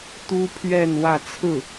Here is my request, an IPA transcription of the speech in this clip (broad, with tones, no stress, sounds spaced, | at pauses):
t̪ u˥ pʰ ɥ ɛ˥˧ n w ä˥˧ t͡sʰ ɹ̩˥˩